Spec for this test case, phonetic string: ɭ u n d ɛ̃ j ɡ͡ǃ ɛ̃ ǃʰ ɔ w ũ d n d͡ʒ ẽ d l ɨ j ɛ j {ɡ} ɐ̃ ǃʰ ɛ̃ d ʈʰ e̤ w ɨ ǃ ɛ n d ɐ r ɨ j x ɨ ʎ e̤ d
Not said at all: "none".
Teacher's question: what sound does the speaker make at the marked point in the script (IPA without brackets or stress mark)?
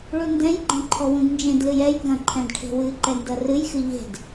ɡ